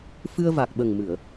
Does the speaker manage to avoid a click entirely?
yes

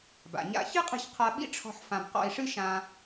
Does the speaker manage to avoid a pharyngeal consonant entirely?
no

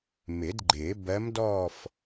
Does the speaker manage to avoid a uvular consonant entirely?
yes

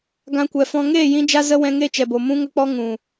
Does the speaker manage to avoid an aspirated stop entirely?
yes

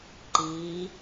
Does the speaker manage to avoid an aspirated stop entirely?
yes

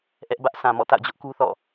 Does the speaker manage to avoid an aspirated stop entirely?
yes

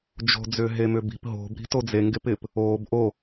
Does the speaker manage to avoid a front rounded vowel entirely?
no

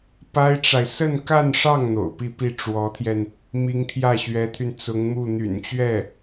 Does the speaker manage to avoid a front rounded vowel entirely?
no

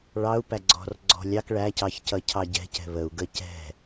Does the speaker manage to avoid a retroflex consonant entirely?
no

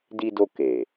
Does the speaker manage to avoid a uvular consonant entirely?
yes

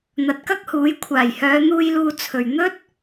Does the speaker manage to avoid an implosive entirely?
yes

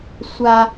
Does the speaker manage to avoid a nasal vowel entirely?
yes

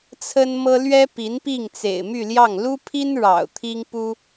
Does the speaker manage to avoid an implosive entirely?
yes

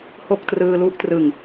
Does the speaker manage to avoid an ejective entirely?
yes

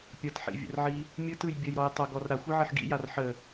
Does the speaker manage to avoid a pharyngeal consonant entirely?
no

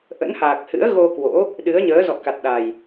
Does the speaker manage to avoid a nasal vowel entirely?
yes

